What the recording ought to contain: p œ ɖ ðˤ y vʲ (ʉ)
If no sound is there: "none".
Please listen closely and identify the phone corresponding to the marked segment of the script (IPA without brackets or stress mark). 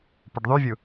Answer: u